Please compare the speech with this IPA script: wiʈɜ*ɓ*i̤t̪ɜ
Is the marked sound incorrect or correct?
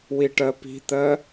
incorrect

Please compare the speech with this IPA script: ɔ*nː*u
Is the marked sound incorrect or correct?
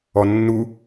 correct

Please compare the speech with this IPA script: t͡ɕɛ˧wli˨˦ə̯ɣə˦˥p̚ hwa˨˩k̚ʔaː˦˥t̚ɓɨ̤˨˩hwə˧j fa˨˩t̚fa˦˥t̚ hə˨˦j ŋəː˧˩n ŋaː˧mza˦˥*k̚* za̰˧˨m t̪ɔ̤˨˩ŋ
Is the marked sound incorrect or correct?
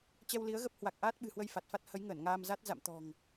incorrect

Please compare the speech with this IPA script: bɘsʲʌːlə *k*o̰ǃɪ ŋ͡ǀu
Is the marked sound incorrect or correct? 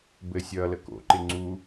correct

